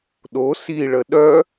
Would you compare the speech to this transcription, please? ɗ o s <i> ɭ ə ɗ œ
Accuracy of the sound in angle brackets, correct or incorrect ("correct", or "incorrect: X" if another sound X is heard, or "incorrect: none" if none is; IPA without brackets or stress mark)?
correct